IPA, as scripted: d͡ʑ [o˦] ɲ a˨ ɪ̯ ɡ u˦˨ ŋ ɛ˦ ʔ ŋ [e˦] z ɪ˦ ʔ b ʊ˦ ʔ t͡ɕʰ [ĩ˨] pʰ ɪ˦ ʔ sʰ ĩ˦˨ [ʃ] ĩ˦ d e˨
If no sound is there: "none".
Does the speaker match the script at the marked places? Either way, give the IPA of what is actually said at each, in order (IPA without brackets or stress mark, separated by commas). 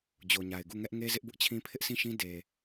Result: o˨, e˦, ĩ˦, ʃ